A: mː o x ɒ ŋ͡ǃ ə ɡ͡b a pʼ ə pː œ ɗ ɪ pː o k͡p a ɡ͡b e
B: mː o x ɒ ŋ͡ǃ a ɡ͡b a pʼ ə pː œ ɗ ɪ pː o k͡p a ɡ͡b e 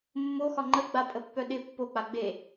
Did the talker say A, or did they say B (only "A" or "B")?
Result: A